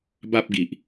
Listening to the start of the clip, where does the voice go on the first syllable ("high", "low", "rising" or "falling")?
high